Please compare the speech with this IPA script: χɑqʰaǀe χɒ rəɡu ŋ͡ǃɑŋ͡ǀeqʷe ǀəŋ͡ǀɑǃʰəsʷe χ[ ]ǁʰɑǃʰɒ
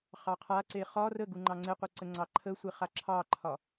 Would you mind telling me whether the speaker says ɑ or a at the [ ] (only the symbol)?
a